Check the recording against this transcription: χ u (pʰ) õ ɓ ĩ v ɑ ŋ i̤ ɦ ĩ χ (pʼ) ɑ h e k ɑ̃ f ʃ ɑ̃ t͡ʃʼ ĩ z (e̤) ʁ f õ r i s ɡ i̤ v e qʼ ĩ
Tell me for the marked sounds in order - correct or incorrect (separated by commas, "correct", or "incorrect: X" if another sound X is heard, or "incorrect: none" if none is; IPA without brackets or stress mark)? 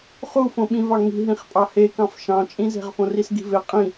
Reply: incorrect: f, correct, correct